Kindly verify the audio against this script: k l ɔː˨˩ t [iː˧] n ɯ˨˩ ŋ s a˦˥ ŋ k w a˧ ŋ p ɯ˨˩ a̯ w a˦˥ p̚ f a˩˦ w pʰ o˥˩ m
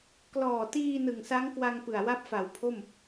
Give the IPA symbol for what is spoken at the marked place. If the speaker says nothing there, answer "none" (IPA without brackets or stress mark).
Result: iː˧